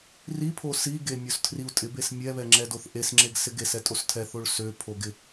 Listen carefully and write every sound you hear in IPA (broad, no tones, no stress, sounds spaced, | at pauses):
r i pʰ o s i ɡ e mʲ o s tʰ r i u̯ tʼ ɪ b e s mʲ ɛ β ɛ ŋ͡ǁ ɛ d o θ ʔ e s ŋ͡ǁ e ɡ s ɪ ɡ e s ɛ tʼ o s tʰ ɛ θ o ɭ s ø pʰ o ɡ ɪ